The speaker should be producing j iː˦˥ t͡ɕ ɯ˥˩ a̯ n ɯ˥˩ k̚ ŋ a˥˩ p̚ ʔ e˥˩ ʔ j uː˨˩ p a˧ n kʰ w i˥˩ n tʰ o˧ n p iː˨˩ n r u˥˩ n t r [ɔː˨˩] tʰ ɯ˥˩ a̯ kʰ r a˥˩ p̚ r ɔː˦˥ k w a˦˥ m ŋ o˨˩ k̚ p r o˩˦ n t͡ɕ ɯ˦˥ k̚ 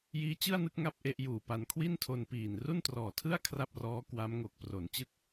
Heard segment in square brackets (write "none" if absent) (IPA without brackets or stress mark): ɔː˨˩